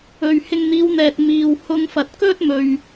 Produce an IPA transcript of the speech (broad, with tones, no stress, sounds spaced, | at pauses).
ɵ˨ ɥ h ɪ˧ ŋ n̪ iː˨˧ w n̪ ɛː˨ t̚ m iː˨ w h ʊ˧ ŋ f ɐ˨ t̚ k ɵ˥ t̚ m ɵ˨ ɥ